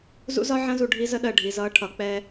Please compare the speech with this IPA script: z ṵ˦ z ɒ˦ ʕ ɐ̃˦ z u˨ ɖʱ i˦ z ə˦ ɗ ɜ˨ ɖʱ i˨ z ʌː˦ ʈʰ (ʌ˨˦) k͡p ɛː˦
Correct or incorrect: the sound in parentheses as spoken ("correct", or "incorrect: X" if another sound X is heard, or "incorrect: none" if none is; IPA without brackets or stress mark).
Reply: correct